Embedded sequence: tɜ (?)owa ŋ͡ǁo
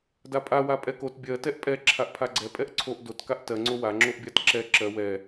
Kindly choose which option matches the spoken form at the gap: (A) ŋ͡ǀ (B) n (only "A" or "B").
A